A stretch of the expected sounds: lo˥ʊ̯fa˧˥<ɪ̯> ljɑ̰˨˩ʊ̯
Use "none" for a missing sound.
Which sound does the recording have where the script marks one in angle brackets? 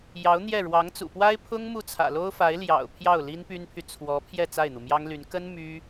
ɪ̯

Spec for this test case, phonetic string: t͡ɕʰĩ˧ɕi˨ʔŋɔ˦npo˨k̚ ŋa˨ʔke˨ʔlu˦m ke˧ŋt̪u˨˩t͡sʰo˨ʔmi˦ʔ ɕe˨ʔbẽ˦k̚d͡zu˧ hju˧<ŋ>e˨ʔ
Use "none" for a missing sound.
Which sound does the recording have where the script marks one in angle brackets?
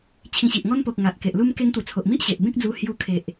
kʰ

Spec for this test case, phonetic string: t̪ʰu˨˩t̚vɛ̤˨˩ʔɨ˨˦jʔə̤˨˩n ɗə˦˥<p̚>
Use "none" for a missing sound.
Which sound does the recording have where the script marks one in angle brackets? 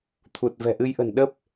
p̚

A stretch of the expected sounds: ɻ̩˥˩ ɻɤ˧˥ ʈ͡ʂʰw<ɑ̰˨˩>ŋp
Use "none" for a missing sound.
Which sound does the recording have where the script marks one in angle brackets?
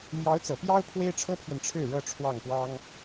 ɑ˥˩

